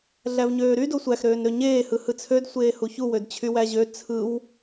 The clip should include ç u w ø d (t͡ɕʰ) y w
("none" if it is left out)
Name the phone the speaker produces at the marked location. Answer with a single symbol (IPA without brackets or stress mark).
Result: t͡ɕʰ